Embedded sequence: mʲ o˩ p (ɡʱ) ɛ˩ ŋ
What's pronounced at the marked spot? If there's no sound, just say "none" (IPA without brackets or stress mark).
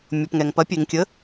ŋ